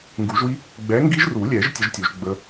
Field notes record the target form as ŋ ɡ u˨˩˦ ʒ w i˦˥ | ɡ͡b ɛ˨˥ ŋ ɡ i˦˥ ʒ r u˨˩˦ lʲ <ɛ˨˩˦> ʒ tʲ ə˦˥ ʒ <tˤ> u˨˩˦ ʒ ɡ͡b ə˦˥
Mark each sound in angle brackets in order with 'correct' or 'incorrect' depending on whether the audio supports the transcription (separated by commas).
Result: correct, incorrect